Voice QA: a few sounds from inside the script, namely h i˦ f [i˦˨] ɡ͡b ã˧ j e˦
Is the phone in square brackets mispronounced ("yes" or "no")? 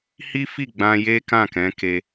no